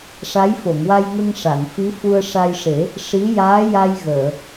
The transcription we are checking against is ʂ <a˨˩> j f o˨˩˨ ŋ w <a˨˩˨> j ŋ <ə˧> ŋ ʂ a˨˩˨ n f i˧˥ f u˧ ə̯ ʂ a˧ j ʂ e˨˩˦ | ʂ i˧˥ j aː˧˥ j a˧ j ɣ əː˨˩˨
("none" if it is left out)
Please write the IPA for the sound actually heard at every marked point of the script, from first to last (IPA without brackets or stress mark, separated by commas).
a˧˥, a˧, ə˧